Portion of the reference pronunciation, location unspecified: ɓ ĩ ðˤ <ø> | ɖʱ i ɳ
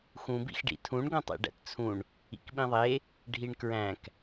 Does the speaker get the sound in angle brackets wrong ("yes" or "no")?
yes